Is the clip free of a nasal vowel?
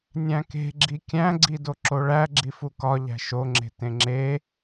no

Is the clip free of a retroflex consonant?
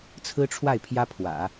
no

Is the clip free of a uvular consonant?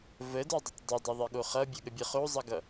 no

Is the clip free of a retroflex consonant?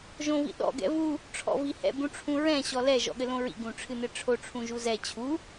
no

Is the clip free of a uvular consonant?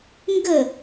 yes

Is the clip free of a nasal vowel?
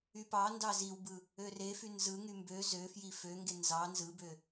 yes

